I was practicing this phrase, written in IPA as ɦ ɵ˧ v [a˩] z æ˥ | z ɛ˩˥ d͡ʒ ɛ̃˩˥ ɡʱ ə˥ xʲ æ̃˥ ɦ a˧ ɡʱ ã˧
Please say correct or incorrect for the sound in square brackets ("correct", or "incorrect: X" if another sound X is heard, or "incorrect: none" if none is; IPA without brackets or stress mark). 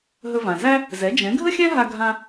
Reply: incorrect: ã˩